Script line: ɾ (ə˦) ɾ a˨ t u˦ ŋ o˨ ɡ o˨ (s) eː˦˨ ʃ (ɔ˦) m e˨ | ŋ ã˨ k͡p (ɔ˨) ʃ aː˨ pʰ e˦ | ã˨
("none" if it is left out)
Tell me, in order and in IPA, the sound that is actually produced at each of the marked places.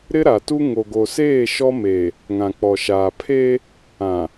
ɪ˦, s, ɔ˦, ɔ˨

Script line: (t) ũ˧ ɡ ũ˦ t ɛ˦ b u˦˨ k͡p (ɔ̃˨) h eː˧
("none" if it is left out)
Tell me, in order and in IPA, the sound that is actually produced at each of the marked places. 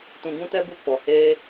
t, ɔ˨

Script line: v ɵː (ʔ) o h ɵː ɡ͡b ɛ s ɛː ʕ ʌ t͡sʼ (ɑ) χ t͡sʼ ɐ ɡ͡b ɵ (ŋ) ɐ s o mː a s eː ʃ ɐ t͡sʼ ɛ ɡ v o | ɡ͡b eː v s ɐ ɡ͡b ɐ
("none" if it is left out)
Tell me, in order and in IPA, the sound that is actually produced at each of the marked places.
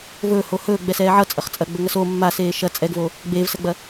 h, ʌ, ŋ

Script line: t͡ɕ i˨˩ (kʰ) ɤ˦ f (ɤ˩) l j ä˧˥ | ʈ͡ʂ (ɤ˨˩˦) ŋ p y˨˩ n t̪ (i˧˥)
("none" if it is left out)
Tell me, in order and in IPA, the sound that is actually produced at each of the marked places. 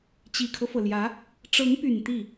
kʰ, ɤ˩, ɤ˧˥, i˥˩

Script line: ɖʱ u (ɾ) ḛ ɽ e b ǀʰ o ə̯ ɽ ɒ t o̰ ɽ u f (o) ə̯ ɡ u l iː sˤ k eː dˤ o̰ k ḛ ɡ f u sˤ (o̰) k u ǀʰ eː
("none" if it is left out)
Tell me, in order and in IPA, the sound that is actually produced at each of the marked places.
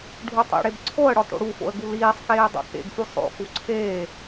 tˤ, o̰, o̰

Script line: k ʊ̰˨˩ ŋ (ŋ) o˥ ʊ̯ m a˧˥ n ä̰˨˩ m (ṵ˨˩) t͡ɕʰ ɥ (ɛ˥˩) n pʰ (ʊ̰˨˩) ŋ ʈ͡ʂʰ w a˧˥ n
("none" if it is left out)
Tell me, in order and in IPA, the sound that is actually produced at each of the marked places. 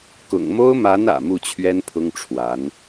m, u˥˩, ɛ˥, ʊ˥

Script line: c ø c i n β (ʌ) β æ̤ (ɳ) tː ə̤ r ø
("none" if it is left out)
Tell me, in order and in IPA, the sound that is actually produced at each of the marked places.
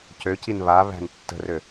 a, n

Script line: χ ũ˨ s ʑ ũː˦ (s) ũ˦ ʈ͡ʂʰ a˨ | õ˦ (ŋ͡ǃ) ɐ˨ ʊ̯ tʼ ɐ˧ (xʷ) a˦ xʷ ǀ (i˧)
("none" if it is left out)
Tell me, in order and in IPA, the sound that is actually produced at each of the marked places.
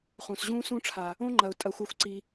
s, ŋ͡ǃ, xʷ, i˧

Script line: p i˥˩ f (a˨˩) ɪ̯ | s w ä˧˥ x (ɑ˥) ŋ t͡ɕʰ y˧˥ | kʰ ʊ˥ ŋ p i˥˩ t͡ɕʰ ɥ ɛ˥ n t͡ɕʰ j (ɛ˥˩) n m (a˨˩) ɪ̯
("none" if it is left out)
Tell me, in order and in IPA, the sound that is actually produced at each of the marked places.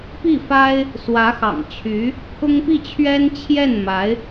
a˥, ɑ̰˨˩, ɛ˥˩, a˧˥

